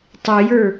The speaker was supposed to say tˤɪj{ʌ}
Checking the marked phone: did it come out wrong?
yes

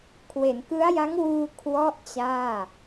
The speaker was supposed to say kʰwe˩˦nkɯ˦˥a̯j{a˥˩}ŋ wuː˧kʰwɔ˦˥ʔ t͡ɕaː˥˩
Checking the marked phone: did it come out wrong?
yes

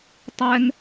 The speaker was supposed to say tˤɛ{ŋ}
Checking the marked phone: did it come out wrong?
no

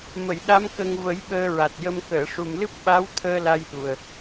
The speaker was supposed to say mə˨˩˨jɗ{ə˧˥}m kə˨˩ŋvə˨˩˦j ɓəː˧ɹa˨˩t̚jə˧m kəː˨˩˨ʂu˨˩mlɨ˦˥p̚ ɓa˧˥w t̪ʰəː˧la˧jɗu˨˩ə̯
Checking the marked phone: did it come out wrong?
yes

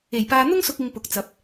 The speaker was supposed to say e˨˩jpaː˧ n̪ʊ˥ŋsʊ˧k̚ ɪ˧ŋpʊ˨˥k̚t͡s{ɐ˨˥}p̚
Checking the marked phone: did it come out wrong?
no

